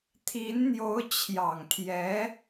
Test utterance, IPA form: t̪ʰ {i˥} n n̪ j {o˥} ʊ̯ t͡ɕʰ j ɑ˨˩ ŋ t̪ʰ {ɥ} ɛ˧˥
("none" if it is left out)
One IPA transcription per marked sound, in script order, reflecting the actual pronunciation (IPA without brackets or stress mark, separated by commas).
i˧˥, o˧˥, j